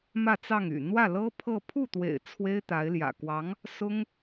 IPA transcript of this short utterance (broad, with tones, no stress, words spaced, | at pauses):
mä˥˧t͡sɑ˥˩ŋy̰˨˩ n̪wä˥˩lɤ˥pʰɤ˥˧ pʰu˥˩t̪wḛ˨˩ɪ̯ t͡sʰwe˥ɪ̯t̪a˧˥ɪ̯ljä̰˨˩ kwɑ˧˥ŋ | sʊ˥ŋ